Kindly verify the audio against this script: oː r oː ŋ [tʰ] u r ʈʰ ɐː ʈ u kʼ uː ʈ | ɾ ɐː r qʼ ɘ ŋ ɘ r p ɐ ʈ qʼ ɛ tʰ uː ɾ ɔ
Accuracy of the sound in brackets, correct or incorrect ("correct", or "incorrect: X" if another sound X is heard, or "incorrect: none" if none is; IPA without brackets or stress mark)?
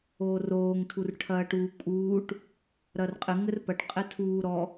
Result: correct